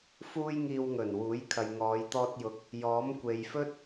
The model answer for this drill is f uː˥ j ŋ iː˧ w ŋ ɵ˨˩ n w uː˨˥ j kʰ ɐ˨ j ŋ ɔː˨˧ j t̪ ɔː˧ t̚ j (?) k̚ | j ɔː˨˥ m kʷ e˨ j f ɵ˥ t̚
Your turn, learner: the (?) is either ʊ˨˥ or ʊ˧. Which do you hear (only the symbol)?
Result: ʊ˨˥